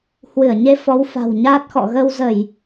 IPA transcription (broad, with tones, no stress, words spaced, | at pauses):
hwɨ˧˩ə̯ɲe˧ fɔ˨˦wfa̤˨˩wɲaː˦˥t̚xɔ̰˧˨ ɣə˧wzə˧˩˨j